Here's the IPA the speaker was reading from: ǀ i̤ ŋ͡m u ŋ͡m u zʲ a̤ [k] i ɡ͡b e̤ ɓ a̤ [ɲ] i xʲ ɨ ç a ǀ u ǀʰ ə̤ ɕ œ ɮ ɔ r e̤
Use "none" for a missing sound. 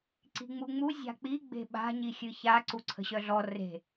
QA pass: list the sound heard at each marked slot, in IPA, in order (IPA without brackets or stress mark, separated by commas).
k͡p, ɲ